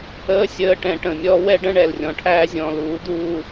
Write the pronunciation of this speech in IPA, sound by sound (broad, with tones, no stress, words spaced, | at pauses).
əː˦sʲəː˧ ʈɛ̃˧ʈə̃˨mʲɔ˦ wɛ˦ɖə̃˦ ɳɛ˨lrʲɔ̃˨ʈʰæː˧zʲɔ̃ː˨l uː˨˦d̪uː˧